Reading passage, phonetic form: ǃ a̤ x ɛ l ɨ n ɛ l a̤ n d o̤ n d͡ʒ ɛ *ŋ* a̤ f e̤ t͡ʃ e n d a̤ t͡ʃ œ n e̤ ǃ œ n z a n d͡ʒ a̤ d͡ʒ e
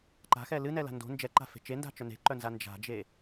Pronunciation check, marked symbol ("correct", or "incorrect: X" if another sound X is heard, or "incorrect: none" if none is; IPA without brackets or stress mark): incorrect: ǃ